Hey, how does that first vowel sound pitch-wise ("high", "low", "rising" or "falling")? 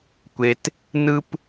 low